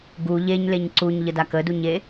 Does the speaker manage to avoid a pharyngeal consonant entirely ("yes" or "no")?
yes